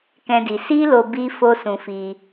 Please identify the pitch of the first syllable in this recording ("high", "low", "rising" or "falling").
high